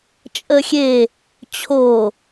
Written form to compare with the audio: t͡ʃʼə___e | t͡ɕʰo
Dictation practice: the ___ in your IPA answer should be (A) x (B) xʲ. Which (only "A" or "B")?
B